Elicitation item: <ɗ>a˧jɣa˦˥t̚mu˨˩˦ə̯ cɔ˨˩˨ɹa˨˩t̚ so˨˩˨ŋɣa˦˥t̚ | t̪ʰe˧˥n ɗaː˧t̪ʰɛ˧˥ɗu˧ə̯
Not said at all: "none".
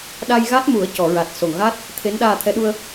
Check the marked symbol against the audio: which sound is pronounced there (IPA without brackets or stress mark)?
ɗ